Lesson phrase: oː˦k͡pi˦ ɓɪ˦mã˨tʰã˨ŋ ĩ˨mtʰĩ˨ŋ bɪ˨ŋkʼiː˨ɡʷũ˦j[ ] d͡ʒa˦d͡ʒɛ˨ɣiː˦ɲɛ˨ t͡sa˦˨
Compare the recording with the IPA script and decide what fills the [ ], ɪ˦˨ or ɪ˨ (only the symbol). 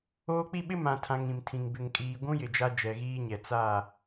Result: ɪ˨